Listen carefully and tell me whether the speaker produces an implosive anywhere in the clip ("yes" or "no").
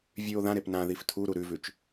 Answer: no